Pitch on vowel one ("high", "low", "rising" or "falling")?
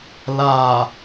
low